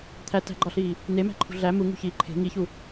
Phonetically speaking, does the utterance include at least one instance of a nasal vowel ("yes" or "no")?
no